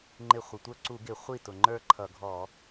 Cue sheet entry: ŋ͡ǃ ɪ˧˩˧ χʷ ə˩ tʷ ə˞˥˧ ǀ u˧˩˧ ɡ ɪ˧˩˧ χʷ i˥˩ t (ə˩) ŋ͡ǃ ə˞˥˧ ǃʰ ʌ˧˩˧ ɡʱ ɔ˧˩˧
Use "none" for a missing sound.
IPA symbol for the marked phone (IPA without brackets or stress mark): ʊ˩